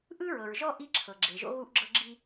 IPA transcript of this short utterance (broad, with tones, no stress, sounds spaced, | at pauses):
ʔ ɯ˦ ɹ ɤ˨ ɹ ʒ ɔ˦ ʔ i˦ ǁʰ ɤ˨ ɡ͡ǁ e˨ ʒ o̰˦ ɣ u˦ ʔ ɡ͡ǁ ɤ˦ ɡ͡ǁ i˦